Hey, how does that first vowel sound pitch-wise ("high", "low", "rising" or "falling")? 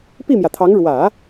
falling